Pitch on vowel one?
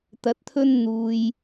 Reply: low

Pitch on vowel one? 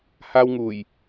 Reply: high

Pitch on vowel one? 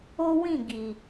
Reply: high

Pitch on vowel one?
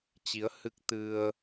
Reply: rising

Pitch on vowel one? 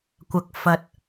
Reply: low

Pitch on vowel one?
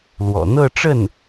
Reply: low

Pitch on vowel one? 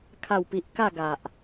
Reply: falling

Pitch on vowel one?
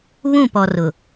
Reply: falling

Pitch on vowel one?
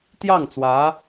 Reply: falling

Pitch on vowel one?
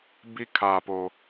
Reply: falling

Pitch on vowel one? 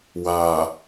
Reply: low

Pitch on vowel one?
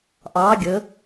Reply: rising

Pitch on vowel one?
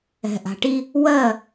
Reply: low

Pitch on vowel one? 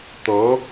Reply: rising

